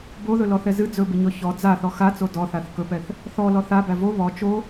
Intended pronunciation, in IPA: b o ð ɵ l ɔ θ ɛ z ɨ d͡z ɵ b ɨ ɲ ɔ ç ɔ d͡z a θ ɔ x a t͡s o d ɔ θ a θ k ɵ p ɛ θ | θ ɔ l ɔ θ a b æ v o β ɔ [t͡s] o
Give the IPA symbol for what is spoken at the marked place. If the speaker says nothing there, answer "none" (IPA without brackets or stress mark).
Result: t͡ʃ